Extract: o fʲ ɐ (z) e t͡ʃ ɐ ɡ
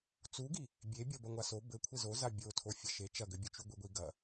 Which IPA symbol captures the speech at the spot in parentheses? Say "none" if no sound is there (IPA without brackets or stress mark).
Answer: ʃ